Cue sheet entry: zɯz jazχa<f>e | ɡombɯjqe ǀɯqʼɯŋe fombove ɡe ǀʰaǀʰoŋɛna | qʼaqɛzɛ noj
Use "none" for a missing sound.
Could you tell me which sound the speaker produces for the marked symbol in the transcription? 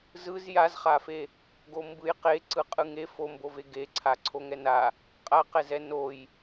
f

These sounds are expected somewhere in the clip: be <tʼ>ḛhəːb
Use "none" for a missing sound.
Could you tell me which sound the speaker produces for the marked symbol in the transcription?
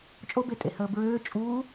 tʼ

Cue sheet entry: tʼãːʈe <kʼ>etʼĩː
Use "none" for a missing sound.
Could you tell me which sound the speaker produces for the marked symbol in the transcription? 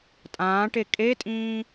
kʼ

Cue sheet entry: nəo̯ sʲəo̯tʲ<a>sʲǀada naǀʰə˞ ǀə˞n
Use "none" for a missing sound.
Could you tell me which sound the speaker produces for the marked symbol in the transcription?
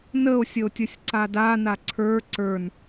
ə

